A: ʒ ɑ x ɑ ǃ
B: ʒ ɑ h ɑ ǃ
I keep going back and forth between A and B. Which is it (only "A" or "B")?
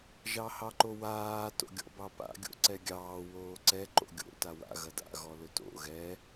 B